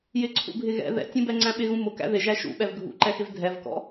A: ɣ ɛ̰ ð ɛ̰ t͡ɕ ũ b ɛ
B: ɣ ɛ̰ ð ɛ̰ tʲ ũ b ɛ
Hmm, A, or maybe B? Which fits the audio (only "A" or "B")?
B